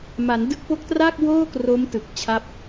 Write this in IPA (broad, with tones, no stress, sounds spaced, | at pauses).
m a˩˦ n d ɯ˦˥ k̚ p o˦˥ k̚ t r aː˥˩ k̚ w oː˥˩ k r o˦˥ m t ɯ˨˩ k̚ t͡ɕʰ a˥˩ p̚